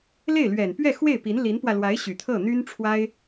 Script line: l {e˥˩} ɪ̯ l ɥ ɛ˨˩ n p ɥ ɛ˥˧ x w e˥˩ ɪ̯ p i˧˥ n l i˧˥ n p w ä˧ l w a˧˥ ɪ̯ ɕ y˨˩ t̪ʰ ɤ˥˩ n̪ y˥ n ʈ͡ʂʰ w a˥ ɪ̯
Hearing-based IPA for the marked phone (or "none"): e˥˩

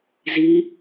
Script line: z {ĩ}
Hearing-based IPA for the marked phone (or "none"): i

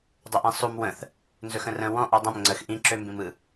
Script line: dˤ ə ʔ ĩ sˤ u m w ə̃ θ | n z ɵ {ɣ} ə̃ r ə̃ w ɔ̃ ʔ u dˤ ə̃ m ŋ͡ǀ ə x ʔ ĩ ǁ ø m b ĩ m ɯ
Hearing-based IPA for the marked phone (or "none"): x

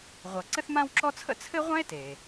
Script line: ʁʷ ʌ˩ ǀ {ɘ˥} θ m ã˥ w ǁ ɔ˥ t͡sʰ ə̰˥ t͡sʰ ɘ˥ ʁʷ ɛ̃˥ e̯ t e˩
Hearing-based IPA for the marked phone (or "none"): ɘ˥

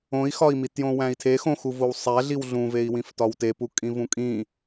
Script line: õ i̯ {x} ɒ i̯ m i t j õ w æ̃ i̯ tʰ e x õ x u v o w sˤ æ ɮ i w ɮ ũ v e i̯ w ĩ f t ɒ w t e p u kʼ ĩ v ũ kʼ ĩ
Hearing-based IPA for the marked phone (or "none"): x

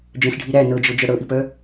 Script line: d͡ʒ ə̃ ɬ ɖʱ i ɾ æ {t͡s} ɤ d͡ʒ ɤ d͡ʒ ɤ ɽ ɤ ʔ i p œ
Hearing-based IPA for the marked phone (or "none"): n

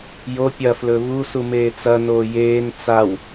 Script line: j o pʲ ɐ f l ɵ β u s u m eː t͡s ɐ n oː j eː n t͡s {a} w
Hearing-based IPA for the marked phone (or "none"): a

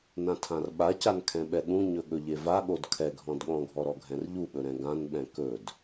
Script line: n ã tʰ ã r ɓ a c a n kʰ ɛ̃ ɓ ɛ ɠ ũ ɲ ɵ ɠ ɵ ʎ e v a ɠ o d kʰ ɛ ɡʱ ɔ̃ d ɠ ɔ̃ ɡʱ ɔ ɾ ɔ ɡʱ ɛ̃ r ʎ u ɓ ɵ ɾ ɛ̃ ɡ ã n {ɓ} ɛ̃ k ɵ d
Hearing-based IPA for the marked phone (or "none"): ɓ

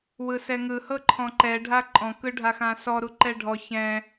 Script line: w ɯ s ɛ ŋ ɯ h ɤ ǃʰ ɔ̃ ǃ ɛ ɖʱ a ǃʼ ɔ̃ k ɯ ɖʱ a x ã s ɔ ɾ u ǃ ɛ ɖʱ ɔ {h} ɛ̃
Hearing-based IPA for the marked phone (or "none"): ç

